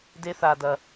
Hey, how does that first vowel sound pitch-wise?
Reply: high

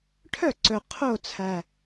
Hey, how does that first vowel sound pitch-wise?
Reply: falling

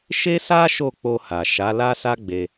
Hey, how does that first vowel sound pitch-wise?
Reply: high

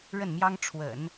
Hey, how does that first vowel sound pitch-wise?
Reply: falling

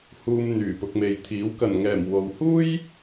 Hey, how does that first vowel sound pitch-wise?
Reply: low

